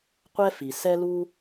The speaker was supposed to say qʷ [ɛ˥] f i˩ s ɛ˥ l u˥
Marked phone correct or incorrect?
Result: correct